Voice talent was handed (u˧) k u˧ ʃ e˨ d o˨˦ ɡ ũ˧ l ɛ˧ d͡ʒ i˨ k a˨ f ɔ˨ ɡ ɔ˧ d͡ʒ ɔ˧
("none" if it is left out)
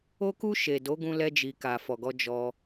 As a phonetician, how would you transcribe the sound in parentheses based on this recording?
o˧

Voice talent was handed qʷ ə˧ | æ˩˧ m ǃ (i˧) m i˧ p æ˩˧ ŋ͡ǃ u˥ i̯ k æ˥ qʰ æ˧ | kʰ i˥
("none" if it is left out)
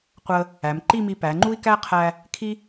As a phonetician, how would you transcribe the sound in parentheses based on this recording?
i˥˧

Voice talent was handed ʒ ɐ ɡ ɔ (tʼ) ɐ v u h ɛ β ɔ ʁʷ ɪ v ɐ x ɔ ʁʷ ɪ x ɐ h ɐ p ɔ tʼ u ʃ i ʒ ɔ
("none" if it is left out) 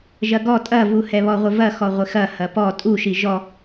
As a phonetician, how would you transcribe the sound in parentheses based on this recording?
tʼ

